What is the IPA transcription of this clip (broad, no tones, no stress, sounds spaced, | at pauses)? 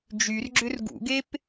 d͡ʒ y r ɡ͡ǁ ʏ r ɡ ṵ ɡ e p